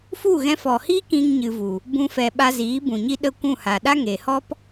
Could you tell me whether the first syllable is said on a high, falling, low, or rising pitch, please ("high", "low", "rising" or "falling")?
falling